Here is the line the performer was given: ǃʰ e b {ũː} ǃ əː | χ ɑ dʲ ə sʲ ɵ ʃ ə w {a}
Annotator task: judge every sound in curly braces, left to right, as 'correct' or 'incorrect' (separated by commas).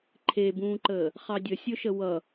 correct, incorrect